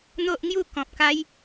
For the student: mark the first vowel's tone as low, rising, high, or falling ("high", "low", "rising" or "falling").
high